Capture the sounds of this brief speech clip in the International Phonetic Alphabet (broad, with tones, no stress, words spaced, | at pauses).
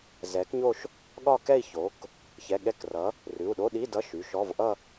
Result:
zɛ˩˥kɲo˥˧ʃ | ɠɒ˥˧kɛ˥˧i̯ço˩˥k | çɛ˩˧˩ɠɛ˧˥˧krʌ˩˥ | rʉ˩˧˩u̯ɗo˧˥˧ɗi˧˥˧dʌ˧˥˧ ʃy˩˧˩ʃɔ˧˥˧v ʔʌ˥˧